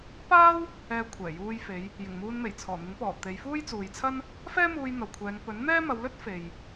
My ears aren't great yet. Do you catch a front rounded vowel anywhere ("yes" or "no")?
no